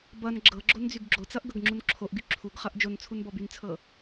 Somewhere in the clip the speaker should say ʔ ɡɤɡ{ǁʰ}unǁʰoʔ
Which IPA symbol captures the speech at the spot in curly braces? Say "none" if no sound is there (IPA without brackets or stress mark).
ŋ͡ǁ